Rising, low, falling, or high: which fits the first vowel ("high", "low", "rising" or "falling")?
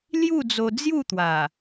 falling